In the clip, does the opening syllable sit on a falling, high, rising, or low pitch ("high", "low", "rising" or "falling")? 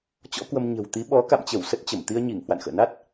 rising